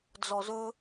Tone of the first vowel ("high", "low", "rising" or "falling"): low